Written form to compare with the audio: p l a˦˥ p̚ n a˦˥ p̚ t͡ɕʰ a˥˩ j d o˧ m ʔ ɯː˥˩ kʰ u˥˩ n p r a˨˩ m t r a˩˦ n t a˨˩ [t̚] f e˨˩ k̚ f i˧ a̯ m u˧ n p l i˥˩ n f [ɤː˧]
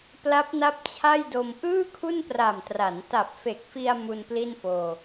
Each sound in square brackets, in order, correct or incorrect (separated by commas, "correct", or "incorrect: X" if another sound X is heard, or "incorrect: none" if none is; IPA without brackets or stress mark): incorrect: p̚, incorrect: oː˧